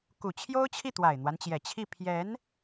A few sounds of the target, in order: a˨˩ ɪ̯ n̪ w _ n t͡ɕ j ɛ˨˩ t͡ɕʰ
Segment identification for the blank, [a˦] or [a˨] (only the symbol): a˦